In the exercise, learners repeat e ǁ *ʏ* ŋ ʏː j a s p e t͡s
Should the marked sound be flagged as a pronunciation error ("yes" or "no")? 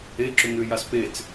no